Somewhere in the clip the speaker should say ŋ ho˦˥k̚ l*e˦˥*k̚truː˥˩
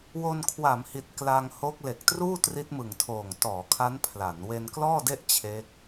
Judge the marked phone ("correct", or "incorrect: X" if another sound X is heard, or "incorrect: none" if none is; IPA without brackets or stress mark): incorrect: e˨˩